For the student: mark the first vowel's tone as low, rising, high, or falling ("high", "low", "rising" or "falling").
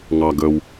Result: low